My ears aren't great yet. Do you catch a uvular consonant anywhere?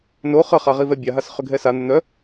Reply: yes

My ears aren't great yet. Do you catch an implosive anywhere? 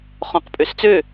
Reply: no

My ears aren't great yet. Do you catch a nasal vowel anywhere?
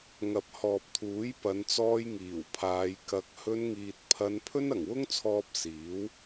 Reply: no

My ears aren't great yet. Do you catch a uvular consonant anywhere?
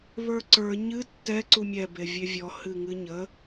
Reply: no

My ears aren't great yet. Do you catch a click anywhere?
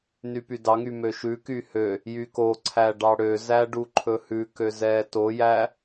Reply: yes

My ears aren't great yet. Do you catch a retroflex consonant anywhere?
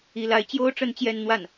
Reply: yes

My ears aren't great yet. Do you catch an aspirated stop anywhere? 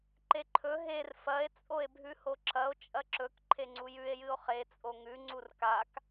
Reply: yes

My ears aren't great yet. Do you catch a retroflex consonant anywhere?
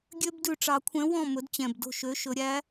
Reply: yes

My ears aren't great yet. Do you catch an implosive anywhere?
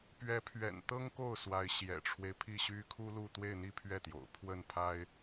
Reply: no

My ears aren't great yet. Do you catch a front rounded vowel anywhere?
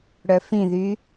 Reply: yes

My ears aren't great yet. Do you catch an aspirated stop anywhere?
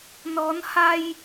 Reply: no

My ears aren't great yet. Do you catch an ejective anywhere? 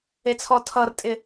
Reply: yes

